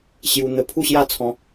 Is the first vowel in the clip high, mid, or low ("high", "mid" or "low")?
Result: high